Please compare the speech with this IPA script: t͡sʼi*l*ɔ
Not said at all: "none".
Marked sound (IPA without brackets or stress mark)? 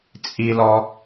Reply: l